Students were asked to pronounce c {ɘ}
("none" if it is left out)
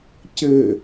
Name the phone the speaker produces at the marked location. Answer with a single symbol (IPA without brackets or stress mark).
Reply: ɘ